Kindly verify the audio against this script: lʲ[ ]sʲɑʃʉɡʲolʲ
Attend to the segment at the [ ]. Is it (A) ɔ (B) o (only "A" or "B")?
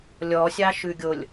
A